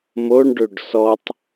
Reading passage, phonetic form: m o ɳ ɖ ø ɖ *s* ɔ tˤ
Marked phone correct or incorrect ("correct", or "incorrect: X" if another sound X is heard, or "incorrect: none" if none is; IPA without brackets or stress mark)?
correct